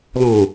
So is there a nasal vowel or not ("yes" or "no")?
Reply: yes